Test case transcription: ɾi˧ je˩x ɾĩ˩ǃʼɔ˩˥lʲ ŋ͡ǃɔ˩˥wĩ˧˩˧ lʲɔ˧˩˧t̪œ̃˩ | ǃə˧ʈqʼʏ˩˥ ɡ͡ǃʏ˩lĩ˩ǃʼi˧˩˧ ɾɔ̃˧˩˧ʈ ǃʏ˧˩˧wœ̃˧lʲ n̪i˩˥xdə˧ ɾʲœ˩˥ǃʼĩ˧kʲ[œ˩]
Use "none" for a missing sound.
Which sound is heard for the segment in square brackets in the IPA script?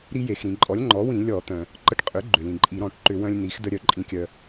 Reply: œ˧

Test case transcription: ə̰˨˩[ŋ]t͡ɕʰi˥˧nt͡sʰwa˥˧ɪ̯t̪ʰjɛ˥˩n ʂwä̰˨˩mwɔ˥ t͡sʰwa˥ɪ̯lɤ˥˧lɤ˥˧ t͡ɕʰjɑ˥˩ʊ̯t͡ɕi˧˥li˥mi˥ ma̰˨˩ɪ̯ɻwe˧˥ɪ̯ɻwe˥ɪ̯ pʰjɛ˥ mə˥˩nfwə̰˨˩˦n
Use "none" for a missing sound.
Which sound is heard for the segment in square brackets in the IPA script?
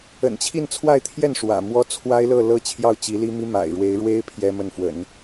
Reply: n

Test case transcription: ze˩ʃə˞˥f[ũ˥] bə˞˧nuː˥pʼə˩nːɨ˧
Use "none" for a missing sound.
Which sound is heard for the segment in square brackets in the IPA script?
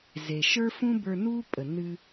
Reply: ũ˥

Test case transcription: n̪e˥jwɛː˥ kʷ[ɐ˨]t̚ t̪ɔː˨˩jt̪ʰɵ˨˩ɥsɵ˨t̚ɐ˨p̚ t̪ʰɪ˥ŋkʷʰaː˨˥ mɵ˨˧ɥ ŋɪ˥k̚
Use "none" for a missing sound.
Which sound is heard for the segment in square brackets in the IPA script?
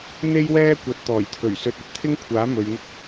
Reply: ɐ˨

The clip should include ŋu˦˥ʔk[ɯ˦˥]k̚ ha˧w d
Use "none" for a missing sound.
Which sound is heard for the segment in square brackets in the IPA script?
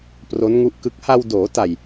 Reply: ɯ˦˥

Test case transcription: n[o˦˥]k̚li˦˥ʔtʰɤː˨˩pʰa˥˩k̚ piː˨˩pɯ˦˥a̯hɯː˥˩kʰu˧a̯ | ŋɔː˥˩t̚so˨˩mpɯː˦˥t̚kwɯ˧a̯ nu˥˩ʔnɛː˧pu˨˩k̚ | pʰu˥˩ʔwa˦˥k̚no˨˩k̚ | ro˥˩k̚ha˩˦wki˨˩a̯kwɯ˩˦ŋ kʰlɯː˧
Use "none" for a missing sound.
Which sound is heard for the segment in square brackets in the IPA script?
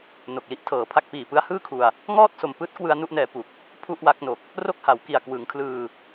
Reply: o˨˩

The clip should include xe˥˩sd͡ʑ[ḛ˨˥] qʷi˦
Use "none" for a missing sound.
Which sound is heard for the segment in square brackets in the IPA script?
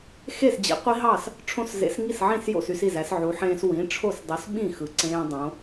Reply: ḭ˨˥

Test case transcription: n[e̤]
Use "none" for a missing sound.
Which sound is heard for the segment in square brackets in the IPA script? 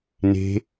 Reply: e̤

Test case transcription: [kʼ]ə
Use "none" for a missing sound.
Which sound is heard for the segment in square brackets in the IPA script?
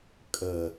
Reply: kʼ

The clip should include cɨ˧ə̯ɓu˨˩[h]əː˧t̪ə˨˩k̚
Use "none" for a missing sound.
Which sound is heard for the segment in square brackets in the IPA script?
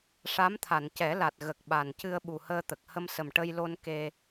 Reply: h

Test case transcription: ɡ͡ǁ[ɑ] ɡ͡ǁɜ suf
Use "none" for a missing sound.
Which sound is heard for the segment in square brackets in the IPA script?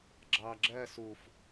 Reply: ɑ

